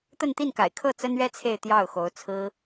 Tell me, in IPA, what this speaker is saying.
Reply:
t̪ ə˥˧ n t̪ i˥˩ n k a̰˨˩ ɪ̯ kʰ ɤ˥˩ t͡s ə˥ n ɥ ɛ˥ t͡sʰ e˥˧ ɪ̯ t̪ j ɑ˥˩ ʊ̯ x o˧˥ ʊ̯ t͡sʰ ɹ̩˥

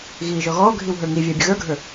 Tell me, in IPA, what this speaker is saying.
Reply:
ɣ iː ʒ ɔ ɣ ɔː ɡʱ i w ɦ ə˞ ŋ i vʲ æ bʲ ə ɣ ə˞ ɡʱ ə˞

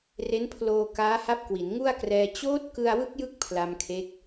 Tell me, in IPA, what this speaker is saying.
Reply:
r e˦˥ n pʰ l oː˧ k aː˦˥ h a˦˥ p̚ k w i˩˦ n ŋ u˥˩ a̯ k r ɛː˧ t͡ɕ oː˦˥ t̚ k ɯ˧ a̯ w ɯ˦˥ k̚ j ɯ˥˩ k̚ pʰ l a˧ m kʰ e˦˥ k̚

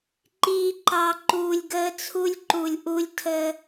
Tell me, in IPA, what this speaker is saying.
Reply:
ǃ iː˨ ǃ ɑ˨ ǃ uː˨ lʲ ɡ əː˦ t͡sʰ u˦ lʲ ǃ u˨ lʲ ʔ u˦ lʲ tʰ əː˦

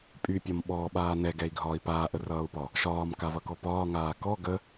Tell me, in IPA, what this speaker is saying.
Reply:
pʼ y pʲ ɒ m ɓ ɔː ɓ aː n ɛ ɡ ɛ i̯ ɡʱ ɒː i̯ p aː ʔ ə r ʌː u̯ p ɒ | ʃ ɒː m k a v ʌ k ɔ p ɒː ŋ aː k ɔ ɡ ə

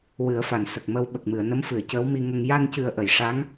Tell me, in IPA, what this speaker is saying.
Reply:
w ɨ˨˩˦ ə̯ f a˨˩˨ n s ə˨˩ k̚ m ə˧ w ɓ ə˨˩ k̚ m ɨ˨˩˨ ə̯ n ə˧˥ m f ɨ˨˩˨ ə̯ c əː˧˥ w m i˧ ŋ ə˧ ŋ j a˧ n c ɨ˨˩ ə̯ ʔ ə˨˩˨ j ʂ a˧˥ ŋ

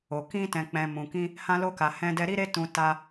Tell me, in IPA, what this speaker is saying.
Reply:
o˧ k ĩ˦ t ɛ̃˧ k͡p ɛ̃˧ m ũ˧ k ĩ˦ | h ã˦ l o˦ k a˧ h ɛ̃˦ d ɛ˦ ɾ i˦ ɾ e˦ t ũ˧ t a˦

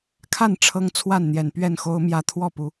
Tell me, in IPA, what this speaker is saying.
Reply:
kʰ a˥˨ n ʈ͡ʂʰ ɤ˦ ŋ t͡sʰ w a˥˨ n n̪ j ɛ˨˩ n p ɥ ɛ˥˨ n x o˦ ʊ̯ m j ä˦ t̪ʰ w ɔ˥˨ p u˨˦

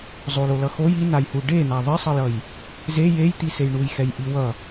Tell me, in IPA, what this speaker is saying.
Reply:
zˤ o l o l ʌ x o j i n a j h u ɖ e n̪ a ðˤ i sˤ ʌ j ʌ j | z e j e j t̪ i s e j ɳ u j x ɛ j ʔ i w ʌ

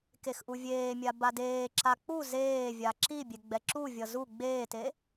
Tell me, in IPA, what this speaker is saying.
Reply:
k e x ʔ u vʲ eː mʲ a b a d eː ǁ a k͡p u z eː vʲ a ǁ i bʲ e ɡ͡b ɛ ǁ u vʲ ʌ z u ɡ͡b eː t e

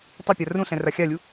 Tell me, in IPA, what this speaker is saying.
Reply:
tˤ ɛ pʲ a r ũ ɬ ɛ̃ r a xʲ a lʲ u

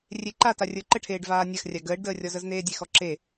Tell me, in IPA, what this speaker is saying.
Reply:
rʲ e ǃ a t a rʲ ə˞ ǃ ə ʈʰ eː ɖ v aː nʲ a x rʲ a ɡ əː ɖ d əː rʲ ɔ z ə z n eː dʲ e x ɔ ǁ e

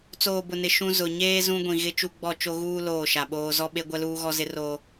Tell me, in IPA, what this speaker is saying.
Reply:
t͡s oː˨ b ʊ˨ n ɪ˨ ʃ ũ˦ z ʊ˨ ɲ eː˦ z ũ˦ ɡʷ ĩ˨ ɣ ɪ˦ t͡ʃ u˦ ɡ͡b ɔ˦˨ t͡ʃ o˦ ɣ uː˦ l oː˦˨ ʃ a˨ ɓ oː˦ z ɔ˦ ɓ e˦ ɡʷ ɛ˦ l uː˦ ɣ ɔ˦ z ɪ˦ r oː˦

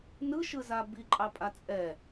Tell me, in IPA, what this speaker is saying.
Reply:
n ɯ ʃ ɯ z a b i ǃʼ ɑ pʼ a t͡sʼ ɛ

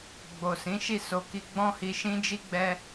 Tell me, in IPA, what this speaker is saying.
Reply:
ɡ͡b o˨ s ĩ˨˦ ʃ i˦˨ s o˨ k i˧ ɡ͡b ɔ̃˦ h i˧ ʃ ĩ˦ d͡ʒ i˦ ɡ͡b ɛ˦

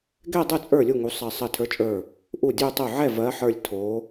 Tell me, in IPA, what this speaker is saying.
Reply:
ɡ ɛ˥˧ dˤ u˥˩ t͡sʼ ə˞˥˩ lʲ u˥˩ ŋ u˨˦ sˤ ɜ˧˩ sˤ ɜ˧˩ tʰ ə˞˨˦ t͡ʃʼ ə˞˧˩ | ʔ u˥˩ dʲ u˥˧ tˤ u˥˩ ʕ ɛ˥˩ v ɜ˨˦ ħ ə˞˧˩ lʲ tʰ o˨˦

